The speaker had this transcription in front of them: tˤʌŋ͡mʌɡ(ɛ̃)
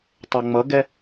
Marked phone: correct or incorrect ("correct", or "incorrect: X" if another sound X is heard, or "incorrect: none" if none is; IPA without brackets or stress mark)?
incorrect: ɛ